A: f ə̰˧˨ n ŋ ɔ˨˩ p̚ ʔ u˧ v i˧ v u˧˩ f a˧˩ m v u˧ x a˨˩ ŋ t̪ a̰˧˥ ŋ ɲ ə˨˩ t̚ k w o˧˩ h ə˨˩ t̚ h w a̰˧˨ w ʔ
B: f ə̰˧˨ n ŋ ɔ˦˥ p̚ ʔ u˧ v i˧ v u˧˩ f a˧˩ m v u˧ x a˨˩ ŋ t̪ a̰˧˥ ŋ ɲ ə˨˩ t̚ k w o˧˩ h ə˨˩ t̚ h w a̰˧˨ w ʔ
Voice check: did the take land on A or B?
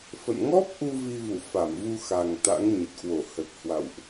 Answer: B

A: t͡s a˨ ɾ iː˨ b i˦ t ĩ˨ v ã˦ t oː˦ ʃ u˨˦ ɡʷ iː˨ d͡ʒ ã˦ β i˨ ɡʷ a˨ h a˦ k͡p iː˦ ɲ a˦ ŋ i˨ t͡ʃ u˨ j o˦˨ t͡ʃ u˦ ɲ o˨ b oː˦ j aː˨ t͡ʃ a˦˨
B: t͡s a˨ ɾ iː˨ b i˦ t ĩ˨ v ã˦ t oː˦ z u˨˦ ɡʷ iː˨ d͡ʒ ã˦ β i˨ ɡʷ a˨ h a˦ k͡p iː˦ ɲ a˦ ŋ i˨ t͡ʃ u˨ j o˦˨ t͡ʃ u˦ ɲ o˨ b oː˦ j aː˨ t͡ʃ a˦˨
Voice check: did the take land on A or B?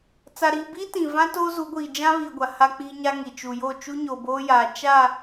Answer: B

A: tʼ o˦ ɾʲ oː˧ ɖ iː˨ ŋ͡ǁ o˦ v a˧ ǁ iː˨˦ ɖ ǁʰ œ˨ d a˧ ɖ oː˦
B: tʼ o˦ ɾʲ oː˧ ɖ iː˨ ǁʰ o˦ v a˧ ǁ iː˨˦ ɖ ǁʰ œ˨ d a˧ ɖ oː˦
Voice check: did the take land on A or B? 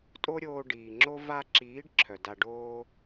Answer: A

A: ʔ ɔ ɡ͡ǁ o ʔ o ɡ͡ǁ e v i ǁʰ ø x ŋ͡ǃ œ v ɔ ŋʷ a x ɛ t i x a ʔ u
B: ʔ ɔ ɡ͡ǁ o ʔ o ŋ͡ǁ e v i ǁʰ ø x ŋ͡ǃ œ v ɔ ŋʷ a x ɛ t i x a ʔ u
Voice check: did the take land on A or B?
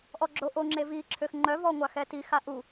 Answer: B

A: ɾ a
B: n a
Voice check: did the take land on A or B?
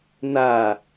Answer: B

